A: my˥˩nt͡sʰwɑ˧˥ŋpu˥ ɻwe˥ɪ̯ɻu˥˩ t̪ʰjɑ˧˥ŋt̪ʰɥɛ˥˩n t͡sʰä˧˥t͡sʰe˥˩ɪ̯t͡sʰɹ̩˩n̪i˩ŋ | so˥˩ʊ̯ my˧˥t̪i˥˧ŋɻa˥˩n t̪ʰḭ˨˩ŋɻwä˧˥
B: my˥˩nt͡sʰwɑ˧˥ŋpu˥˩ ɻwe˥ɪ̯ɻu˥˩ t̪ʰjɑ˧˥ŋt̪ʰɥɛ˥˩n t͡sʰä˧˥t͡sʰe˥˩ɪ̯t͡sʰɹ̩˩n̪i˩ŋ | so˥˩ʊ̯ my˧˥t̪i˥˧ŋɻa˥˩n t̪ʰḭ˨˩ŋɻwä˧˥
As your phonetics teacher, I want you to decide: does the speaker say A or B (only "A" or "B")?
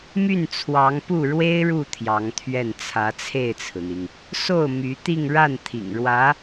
B